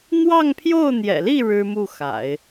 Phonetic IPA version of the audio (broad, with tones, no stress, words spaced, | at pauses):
n̪wɑ˥˧ŋpʰjo˥˩ʊ̯n̪jɛ̰˨˩li˥˩ ɻɻ̩˥mu˥˩xa̰˨˩˦ɪ̯